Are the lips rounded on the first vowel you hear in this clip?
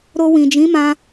yes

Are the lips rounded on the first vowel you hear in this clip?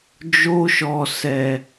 yes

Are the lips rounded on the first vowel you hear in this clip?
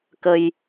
no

